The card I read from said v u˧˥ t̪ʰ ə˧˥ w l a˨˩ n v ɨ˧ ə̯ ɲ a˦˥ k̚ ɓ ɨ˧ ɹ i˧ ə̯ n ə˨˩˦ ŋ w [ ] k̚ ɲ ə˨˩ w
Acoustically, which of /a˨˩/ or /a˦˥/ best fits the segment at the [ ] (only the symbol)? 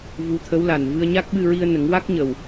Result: a˦˥